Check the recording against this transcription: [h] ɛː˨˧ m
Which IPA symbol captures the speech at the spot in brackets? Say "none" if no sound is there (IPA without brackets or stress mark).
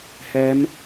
h